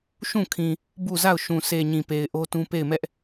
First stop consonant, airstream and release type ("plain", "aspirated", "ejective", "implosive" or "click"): aspirated